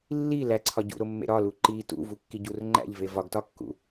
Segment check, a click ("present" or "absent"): present